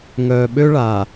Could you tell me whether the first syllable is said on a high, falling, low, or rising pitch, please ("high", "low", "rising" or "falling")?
low